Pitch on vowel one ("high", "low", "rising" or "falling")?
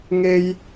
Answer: high